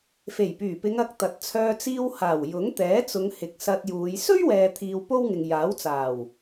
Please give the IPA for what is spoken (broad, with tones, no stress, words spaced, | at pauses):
fe˨˩jpyː˨˩pɪ˨˧ŋɐ˨˥k̚ t̪ɐ˨t̚t͡sʰœː˧ t͡siː˧whaː˨˩w jʊ˨˥ŋt̪ɛː˨˥t͡sʊ˨˧ŋhɪ˨k̚ sɐ˧t̚juː˨˧j sɵ˥ɥwɛː˨t̪ʰiː˨w po˥wŋɪ˨ŋ jaː˨˥wt͡saː˨˩w